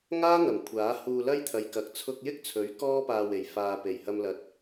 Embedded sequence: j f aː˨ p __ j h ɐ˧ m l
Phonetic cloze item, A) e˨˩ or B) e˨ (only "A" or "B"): A